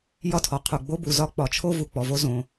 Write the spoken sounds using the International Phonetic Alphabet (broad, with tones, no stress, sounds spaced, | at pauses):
j ɒ˥ tʰ ɔ˩ qʰ u˩ ɡ͡b o˥ b u˩ z ɒ˥ k͡p ɒ˩ t͡ʃʰ o˥ v u˩ k͡p ɔ˩ v o˥ z õ˩